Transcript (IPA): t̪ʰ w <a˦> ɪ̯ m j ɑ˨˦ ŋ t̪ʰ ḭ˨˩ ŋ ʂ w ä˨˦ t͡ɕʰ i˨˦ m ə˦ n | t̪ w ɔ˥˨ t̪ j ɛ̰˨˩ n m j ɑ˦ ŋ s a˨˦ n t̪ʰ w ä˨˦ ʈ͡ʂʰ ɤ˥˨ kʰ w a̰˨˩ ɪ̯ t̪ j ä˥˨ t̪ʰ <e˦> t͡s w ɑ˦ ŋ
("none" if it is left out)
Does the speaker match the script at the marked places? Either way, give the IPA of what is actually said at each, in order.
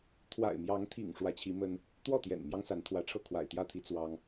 a̰˨˩, i˦

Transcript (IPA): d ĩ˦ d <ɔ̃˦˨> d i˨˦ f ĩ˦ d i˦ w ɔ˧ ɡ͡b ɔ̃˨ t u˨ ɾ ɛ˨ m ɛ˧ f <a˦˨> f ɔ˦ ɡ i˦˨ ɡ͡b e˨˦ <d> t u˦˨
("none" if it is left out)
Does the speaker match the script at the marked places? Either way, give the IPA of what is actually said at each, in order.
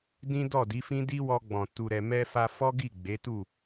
ɔ˦˨, a˧, none

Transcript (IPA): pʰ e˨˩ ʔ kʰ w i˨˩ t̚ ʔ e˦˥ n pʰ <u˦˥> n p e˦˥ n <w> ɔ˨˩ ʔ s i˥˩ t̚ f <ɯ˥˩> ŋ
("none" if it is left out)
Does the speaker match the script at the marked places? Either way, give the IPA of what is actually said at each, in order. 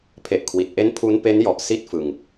u˦˥, j, ɯ˨˩

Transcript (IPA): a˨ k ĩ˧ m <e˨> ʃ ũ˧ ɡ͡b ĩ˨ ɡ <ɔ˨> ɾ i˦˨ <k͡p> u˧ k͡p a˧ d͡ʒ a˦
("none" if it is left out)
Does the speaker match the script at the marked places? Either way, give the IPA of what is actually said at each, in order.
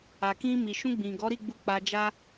i˨, ɔ˨˦, ɡ͡b

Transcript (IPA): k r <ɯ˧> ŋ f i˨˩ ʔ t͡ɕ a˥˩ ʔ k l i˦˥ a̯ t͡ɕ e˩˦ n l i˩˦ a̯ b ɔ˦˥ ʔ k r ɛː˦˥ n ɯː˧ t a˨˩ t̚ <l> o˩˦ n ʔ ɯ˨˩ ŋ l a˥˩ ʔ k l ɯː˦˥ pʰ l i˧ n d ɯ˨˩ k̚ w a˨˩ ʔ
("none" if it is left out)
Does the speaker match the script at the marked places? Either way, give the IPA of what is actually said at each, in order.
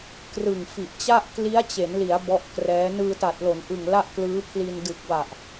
ɯ˨˩, l

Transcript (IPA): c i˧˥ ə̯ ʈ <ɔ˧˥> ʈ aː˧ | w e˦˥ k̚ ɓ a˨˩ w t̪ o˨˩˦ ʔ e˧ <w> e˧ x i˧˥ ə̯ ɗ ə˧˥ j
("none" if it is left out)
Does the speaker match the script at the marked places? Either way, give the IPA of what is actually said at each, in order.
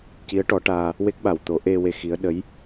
ɔ˧˥, w

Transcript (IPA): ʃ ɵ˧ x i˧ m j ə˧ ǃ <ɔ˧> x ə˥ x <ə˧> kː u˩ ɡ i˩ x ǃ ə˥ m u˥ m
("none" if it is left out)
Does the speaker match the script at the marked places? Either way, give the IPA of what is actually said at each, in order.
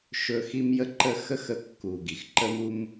ə˧, ə˧

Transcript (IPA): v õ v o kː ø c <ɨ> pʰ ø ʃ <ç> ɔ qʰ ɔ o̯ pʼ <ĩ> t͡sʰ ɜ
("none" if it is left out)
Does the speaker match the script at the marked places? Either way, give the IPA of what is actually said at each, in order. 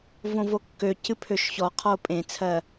ɨ, ç, ẽ

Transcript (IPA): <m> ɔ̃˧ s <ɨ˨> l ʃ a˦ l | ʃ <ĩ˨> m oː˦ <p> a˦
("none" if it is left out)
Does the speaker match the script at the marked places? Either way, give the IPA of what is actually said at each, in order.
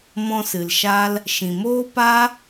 m, ɨ˨, ĩ˨, p

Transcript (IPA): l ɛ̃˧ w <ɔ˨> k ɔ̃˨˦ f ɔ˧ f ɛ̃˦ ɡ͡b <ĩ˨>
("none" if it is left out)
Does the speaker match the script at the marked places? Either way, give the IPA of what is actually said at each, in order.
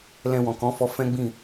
ɔ̃˨, ĩ˦˨

